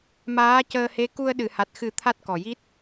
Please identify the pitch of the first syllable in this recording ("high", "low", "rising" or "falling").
rising